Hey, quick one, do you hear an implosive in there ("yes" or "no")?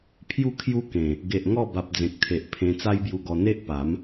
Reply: no